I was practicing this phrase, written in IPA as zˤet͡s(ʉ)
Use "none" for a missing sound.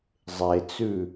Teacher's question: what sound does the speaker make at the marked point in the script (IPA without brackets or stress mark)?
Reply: ʉ